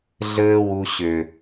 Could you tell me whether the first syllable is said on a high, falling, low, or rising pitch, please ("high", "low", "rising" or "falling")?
high